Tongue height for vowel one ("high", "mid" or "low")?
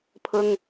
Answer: high